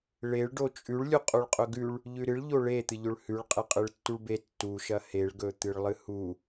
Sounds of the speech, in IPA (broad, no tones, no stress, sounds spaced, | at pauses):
ɭ e ɭ ɖ o t͡ʃʼ ʉ ɭ lʲ u qʼ u ɭ qʼ ɵ ɡ ʉ ɭ | ʎ ʉ ɾ ɨ ɭ ʎ o ɭ e t̪ ɨ ʎ ɵ ɭ h ʉ ɭ qʼ e qʼ ɨ ɭ tː u ɭ b e tː u ʃ ɐ h e ɭ ɡ ɵ t̪ ɨ ɭ lˠ ɨ h u